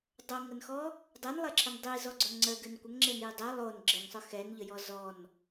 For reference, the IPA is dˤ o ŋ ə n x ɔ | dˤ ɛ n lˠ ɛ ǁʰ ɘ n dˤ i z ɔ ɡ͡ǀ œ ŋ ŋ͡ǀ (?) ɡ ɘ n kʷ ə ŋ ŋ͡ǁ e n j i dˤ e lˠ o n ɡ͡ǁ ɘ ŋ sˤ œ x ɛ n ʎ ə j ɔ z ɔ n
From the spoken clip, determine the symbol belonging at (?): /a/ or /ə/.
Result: ə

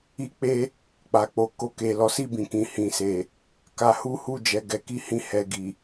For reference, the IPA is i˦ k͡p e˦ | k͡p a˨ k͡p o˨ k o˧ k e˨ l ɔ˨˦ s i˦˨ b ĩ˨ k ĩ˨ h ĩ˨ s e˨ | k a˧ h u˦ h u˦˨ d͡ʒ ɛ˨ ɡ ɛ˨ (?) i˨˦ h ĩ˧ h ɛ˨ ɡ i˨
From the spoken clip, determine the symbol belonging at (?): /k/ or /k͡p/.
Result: k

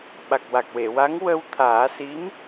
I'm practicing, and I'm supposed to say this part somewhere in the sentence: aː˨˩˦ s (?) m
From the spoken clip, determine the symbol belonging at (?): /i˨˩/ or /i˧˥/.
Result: i˧˥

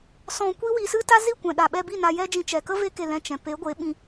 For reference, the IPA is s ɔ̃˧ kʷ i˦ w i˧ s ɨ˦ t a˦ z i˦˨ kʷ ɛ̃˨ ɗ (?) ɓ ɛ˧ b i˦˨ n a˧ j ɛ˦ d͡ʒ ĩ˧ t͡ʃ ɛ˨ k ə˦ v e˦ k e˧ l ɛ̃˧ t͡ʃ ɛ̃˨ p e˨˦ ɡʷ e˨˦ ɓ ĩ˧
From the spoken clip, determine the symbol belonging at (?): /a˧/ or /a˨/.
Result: a˨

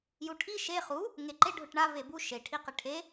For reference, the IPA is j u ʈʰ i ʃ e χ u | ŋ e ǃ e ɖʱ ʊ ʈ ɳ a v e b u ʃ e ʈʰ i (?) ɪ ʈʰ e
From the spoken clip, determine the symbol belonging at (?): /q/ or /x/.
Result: q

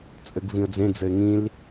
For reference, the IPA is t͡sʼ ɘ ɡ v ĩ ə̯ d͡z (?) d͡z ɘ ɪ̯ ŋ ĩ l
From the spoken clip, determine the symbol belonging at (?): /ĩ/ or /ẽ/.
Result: ẽ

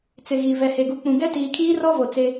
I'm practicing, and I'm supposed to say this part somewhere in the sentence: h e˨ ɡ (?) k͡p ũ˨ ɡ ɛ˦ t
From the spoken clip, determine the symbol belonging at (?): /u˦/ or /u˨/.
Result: u˨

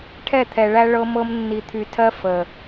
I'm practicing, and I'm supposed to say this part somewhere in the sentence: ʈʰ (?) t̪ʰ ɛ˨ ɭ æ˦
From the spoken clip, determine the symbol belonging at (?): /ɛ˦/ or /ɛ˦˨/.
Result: ɛ˦˨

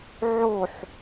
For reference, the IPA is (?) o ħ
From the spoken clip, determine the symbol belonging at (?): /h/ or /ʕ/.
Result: ʕ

